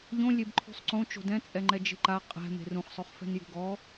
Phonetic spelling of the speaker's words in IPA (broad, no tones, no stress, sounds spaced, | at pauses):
ʎ õ lʲ e b ǃʰ ṳ sˤ ǀ õ t͡ʃ o̤ d ɛ̃ t͡sʼ ɛ ŋ͡ǃ ɛ d͡ʒ e̤ ǃ a qʼ ɛ̤ m e̤ r ũ χ sˤ o χ f ɛ̤ n j ṳ ɡ ɔ